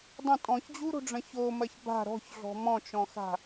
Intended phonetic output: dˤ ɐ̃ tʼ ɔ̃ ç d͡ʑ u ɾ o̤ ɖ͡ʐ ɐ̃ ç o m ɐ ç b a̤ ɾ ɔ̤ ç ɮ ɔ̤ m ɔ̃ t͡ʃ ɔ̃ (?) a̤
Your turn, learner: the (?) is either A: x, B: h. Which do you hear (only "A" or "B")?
A